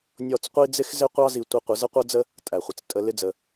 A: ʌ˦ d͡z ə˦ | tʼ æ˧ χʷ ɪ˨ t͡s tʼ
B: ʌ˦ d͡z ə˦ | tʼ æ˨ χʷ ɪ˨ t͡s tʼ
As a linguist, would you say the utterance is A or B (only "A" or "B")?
B